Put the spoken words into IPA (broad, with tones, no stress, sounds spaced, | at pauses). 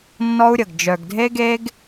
nː ɔ˦ u̯ ɾʲ ə˨ ɡ d͡ʒ œ˨ ɡ dʱ e˦ ɡ e˦ ɡ